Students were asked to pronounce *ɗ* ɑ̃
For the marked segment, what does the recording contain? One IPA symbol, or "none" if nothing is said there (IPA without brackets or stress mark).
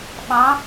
ɓ